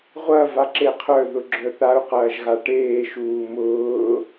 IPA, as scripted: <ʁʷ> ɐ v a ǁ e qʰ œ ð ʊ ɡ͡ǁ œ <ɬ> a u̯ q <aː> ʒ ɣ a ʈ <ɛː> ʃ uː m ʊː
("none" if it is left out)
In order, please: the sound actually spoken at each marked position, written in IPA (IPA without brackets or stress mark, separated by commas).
ʁʷ, θ, ɐː, eː